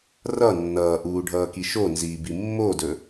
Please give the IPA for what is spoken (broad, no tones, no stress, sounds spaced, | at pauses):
r ʌ nː ʌː ʔ uː ɖʱ ʌː k i ʃ o n z iː b i mː o d ɵ